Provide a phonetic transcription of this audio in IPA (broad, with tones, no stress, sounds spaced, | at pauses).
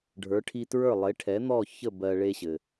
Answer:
ɖʱ ə˞˩˥ ʈʰ i˧ t ɹ ə˞˥˩ lˠ e˩˥ ʈʰ ɛ˩˥ n̪ ɔ˥˩ ç ə˥˩ b ɜ˧ ɭ e˧ ɕ ɘ˩